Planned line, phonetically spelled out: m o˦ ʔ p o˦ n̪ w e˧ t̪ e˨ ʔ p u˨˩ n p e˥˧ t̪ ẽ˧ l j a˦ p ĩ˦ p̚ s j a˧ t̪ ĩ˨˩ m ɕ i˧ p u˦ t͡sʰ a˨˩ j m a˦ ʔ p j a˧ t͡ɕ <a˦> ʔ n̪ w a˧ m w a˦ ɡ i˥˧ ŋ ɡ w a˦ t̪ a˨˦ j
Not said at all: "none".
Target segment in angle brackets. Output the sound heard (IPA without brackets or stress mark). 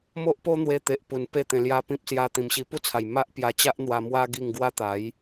a˦